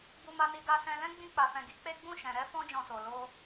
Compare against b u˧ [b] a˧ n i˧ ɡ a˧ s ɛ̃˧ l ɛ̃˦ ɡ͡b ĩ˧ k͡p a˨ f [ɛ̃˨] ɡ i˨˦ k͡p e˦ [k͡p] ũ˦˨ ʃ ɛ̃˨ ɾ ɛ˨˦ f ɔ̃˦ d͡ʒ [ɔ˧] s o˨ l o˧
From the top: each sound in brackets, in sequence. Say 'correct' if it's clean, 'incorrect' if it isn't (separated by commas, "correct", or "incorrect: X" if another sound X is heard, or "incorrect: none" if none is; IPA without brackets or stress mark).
incorrect: m, correct, incorrect: ɡ͡b, incorrect: ɔ̃˧